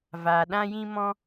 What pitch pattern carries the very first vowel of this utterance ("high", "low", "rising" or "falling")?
low